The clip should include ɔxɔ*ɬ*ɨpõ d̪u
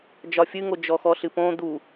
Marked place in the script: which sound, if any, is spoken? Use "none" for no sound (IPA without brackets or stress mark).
ɬ